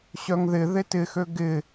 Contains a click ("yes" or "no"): no